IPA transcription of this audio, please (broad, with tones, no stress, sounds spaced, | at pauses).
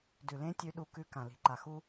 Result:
d ʉ˨ l ẽ˦ tʲ ʉ˧ ɗ u˧ k ʉ˧ k ã˨ l i̤˨ ǃ a˨ x u˧